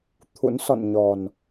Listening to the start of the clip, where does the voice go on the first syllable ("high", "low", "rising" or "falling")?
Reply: rising